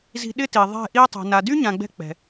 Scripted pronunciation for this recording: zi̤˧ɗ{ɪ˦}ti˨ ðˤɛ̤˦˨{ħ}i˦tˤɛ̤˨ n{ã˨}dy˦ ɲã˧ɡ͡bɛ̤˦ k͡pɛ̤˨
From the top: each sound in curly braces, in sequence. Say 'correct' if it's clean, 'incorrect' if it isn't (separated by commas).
correct, incorrect, incorrect